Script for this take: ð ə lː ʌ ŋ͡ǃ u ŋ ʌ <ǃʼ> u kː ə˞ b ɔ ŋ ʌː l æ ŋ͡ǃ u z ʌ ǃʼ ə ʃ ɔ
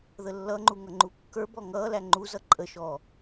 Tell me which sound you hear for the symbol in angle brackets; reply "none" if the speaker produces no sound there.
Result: ŋ͡ǃ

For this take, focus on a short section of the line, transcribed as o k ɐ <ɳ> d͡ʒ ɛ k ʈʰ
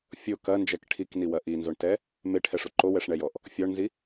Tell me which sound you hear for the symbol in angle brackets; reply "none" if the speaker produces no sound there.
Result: n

